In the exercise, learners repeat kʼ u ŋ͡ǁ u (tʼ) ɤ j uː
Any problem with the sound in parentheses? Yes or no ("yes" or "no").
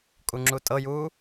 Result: no